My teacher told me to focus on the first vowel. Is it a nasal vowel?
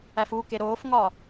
no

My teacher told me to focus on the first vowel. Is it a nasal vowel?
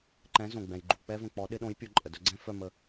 yes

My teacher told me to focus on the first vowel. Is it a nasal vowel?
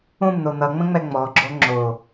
yes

